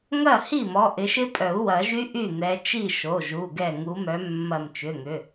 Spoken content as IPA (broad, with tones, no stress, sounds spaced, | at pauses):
ŋ ɐ˥˩ h i˥˩ m ɔ˩˧˩ ʔ ɪ˨˦ ʃ ɪ˦˥ pʼ œ˨˩˦ u̯ w ɐ˨˩˦ ʒ y˦˥ ʔ y˥˩ n̪ ɛ˨˦ t͡ʃ i˥˩ ʃ o˩˧˩ ʒ u˩˧˩ ɡ ɛ˧˩ ŋ u˨˦ m œ˨˦ mː ɐ˧˩ m t͡ʃ ʏ˩˧˩ ŋ ʏ˩˧˩